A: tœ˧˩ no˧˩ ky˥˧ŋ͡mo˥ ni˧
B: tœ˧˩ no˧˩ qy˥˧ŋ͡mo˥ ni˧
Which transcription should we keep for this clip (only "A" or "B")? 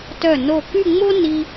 A